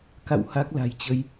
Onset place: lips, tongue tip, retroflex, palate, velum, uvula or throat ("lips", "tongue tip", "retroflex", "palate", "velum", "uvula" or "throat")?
velum